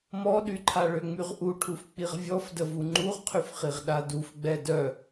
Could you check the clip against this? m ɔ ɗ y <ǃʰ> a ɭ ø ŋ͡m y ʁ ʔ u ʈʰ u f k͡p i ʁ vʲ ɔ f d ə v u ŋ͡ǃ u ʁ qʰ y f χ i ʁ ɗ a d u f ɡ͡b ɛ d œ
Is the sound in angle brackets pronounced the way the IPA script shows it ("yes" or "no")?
yes